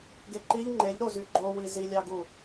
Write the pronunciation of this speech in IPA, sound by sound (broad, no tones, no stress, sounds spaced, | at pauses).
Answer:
ɡ e ǃ i ʎ ŋ͡ǃ e ʎ ɾ o z y ɡ͡ǃ o w i z i lʲ ɑ ɡ u